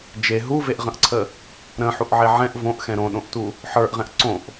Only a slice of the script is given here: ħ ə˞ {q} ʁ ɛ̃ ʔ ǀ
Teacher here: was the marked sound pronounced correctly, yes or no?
no